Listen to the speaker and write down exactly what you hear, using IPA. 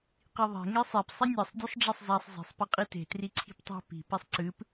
qiðˤe̤ ŋesˤep sˤɐnʲesˤ dʲɵsˤɖ͡ʐɐsˤzasˤ ze̤sˤ piqʼite̤ triǀʰi̤ptˤe̤ pi̤ pisˤǀɨp

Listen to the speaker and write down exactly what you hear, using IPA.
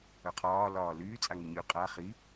œqʰɒː lɒːlyː t͡sʼaŋyɲy qʼa χi

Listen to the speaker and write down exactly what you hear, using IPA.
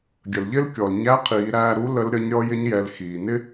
ɡʲə˩lʎɪ˥lkʲɔ˩l ɲæ˧˥qʰiː˩˧ɾæː˧ɾu˧˥ lə˧˥lɾʲʌ˧˥ɲ ɾʲɔ˧˥jɪ˧˥ɲjɛ˩˧l xiː˩nɪ˥

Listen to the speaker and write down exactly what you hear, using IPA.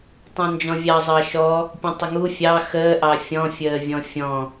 tˤɑ̃nd͡ʒɔ̃vʲɑ zˤɑʃɔ | pʲɔ̃tˤəŋu fʲɑ xəːʔɑ fʲɔ̃fʲəː vʲɔ̃fʲɔ̃

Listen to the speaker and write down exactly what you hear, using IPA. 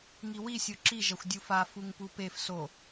ŋiwisʲo ǁiʒɐxʷ dʲufa fuŋpupef so

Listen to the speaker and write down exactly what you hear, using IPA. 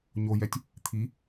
ɲojɛtʲ | t̪ʰi

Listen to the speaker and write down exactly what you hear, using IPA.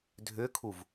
dʱʏkʰuv

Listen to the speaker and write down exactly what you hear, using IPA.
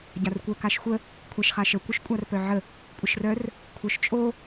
ɟarkʷœkaʃxʷə | kʷʰaʃχaʃə kʷœʃkʷʼarpœʕə | kʷʼəʃrœr | kʷʰœʃt͡ʃʼo

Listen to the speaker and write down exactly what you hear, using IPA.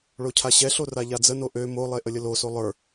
ɭocʰaɕɛɬo raʎad͡zəno ʔø molˠe ʔəlʲəloso lˠə˞

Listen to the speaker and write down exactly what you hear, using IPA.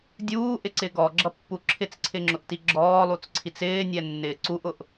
dʲuːʔɪǀɪ ɡɔɡ͡ǁʌpːu ǁʰɪt͡sǀʰɪŋ͡ǁʊʔti ɡ͡ǁɔːlˠut͡sǀʰit͡s ɪːnʲɛnːɪː ǀuʔʊʔ

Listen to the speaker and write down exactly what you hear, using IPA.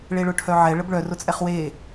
ɭeɭʊʈʰœʕɛ ɭəbɭœ rʊt͡sʼɛχwe

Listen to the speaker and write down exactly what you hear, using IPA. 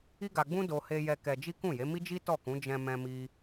i˦ɡa˧ɡ͡bũ˦ do˧ he˧jɛ˧ kɛ˧d͡ʒi˦ kũ˦˨je˨˦ mi˦d͡ʒi˦ tɔ˦˨kũ˨˦ d͡ʒɛ̃˧ mɛ̃˧mi˧

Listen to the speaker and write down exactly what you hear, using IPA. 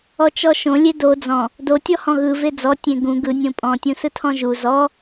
ɔt͡ʃɔʃõ lʲedo d͡zɔ̃ | do tʲɔhɔ̃ɣɯ ved͡zɔ tʲẽɡũ ɡɯ nʲõpʼɔ̃ tʲũsɯtʰɔ̃ʒu zɔ

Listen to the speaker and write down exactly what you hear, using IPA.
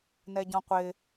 nɛɟɔ̃qʷɪ

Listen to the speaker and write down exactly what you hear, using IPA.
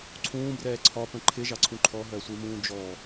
ǀʰũːbrɛː ǀʰɒpə̃ ǃʰɪʒɑǀʰũ ǃʰɔɦɜsʷimũː d͡ʒɔ

